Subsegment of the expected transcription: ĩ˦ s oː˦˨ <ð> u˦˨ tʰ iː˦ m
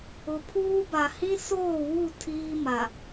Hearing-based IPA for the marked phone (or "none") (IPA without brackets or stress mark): w